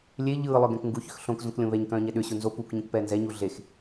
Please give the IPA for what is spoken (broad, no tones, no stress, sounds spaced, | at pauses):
lʲ e ʎ ɯː lˠ œ ɡ ɛ̃ k ŋ ɡ u ç ʏ x ɬ õ k z õ k lʲ õ β ɛ ɲ k œ̃ː ɲ ɛ ɗ ʏ ɕ u n z o p u k ɲ ũ k p ɛː n z ɛ ɲ u ɮ e x